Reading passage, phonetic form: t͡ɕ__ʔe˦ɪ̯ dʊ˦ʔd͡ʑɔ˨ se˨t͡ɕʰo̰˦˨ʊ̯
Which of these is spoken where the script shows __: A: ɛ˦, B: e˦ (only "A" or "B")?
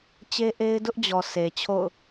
B